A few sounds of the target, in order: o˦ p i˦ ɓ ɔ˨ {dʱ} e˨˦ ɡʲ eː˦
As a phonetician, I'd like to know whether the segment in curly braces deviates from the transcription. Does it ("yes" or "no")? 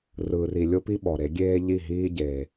yes